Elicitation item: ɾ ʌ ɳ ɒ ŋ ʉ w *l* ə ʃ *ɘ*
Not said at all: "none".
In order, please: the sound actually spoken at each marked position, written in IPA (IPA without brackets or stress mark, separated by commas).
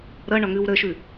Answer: ɾ, ʉ